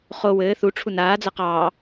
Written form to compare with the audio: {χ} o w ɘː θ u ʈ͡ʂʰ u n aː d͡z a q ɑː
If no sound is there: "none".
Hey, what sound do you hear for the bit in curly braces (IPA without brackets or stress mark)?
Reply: χ